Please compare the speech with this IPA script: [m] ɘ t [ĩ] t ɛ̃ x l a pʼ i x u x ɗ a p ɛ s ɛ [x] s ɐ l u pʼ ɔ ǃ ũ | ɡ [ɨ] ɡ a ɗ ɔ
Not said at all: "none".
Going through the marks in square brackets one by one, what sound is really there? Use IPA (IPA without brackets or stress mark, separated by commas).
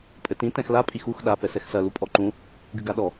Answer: pʼ, ĩ, x, ɨ